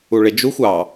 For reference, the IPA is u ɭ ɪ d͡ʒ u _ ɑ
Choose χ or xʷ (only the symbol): xʷ